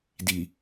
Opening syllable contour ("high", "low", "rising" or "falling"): low